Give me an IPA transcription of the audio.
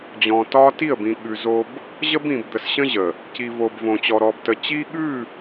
d͡ʑ ɔ̃˨ t ɒ˦ t i˦˨ ə̯ b ĩ˨ ɠ ʉ˨ z o˦ b | ʑ ə˦ b ĩ˨ b d̪ ə˨ s ɕ ə̃˦ ʑ ə˨ | c i˨ v o˨ b v õ˨ t͡ɕ ɔ˨ ɾ ɔ˨ b t ə˨ t͡ɕ i˦ ɠ ʉ˦˨

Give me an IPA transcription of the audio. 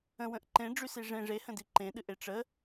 ə̃ w ə̃ ʔ ǃ ẽ ɖ͡ʐ y s i ʐ ẽ ʐ e h ə̃ d i ǃ ẽ ɗ ɨ ʔ e ʈ͡ʂ ə

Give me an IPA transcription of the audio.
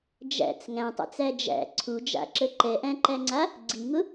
d͡ʒ æ̰ t͡s ŋ æ̃ tˤ a̰ t͡s æ d͡ʒ æ̰ ǀʰ u d͡ʒ a̰ ǁ ə ǃ ɛ ʔ æ̃ ǃ æ ŋ͡ǀ a | ɡ͡ǀ i ŋ ʊ

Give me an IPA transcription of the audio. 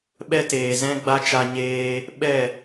ɓ ɛ˦ t eː˨ z ɛ̃˦ ɡ͡b a˦ t͡ʃ a˧ ɲ eː˧ | ɓ ɛ˦˨

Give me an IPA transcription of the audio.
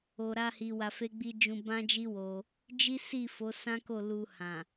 o˨ ɾ a˧ h i˨ w a˧ f e˦ ɡ͡b i˦ d͡ʒ ũ˧ b ã˦ d͡ʒ i˦ w o˧ | d͡ʒ i˦ s i˦˨ f o˨˦ s ã˦ k o˦˨ l u˧ h ã˨

